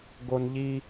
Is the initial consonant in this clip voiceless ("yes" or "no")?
no